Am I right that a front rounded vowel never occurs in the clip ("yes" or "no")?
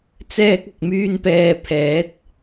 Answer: no